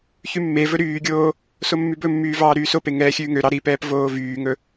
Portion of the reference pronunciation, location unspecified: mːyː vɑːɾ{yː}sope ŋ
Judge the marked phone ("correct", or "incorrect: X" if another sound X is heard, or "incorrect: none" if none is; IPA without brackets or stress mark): correct